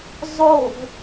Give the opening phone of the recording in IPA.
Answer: zˤ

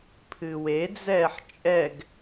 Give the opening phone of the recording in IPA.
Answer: pʰ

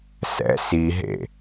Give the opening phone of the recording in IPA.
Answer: s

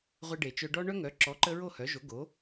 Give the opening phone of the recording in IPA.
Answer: ʁʷ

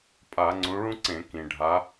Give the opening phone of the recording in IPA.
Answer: pʼ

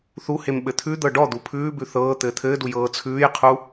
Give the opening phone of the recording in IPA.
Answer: θ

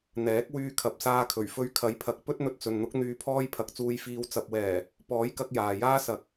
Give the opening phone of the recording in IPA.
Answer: n̪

